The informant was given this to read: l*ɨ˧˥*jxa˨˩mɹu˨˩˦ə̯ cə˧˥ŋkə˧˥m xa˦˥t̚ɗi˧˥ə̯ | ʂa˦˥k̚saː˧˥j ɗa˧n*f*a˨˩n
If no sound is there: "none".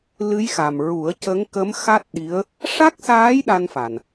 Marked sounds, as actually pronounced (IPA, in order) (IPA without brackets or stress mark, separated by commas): ɨ˧˥, f